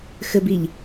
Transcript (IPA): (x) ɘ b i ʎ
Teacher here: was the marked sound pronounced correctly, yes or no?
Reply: yes